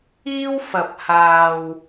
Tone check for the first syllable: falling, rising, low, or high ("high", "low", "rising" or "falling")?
high